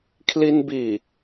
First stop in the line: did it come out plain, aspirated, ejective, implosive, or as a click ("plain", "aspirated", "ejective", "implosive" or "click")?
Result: aspirated